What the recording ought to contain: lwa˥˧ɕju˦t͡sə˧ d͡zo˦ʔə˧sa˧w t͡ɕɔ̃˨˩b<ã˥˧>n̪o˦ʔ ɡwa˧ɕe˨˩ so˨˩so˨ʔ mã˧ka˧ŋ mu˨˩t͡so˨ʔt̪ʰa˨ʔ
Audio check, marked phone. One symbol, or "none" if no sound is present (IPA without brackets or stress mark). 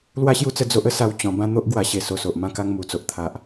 ã˥˧